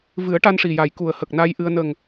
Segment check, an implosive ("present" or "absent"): absent